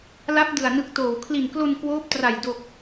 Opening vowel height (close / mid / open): open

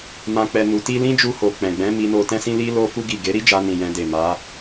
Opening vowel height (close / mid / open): open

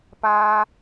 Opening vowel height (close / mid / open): open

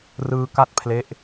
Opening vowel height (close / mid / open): close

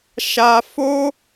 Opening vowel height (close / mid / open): open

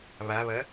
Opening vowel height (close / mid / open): open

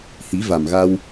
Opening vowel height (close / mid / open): close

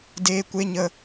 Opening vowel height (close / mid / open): mid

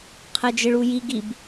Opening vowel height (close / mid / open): mid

